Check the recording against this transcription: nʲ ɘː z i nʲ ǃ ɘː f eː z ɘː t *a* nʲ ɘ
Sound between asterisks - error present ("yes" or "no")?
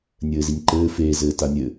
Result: no